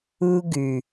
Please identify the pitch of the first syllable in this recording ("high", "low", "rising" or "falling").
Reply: high